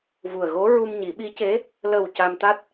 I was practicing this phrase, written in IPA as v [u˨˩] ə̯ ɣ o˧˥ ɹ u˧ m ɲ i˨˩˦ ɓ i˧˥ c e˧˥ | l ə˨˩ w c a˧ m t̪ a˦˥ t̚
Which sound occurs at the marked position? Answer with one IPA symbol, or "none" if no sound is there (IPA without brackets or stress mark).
u˨˩